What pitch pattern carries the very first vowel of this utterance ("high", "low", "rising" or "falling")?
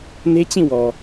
high